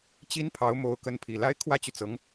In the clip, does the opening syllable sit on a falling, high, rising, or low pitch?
high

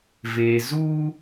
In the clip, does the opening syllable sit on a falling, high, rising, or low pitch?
low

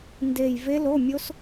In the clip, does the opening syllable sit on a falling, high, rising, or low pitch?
low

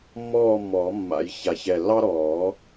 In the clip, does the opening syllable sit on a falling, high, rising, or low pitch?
falling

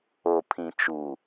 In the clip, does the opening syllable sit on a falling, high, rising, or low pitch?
low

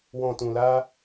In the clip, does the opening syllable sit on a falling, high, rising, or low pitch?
low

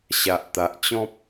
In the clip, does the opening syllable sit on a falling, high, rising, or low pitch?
low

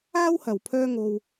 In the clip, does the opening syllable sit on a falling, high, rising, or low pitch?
high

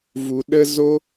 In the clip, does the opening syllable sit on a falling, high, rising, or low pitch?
low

